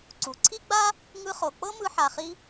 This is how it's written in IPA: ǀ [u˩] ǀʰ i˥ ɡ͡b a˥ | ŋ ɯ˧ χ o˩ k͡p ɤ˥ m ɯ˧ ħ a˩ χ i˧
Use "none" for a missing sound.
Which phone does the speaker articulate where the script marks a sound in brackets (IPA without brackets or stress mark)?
u˩